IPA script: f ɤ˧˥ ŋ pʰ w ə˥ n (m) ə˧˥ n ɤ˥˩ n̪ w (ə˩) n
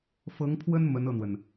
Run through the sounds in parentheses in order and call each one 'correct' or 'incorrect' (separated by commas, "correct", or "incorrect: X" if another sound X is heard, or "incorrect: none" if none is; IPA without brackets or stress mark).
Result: correct, correct